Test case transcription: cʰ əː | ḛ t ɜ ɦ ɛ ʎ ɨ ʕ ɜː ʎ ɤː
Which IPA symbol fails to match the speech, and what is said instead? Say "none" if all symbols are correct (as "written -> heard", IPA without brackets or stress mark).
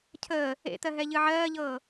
none